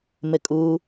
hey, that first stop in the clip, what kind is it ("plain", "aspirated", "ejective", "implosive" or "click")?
ejective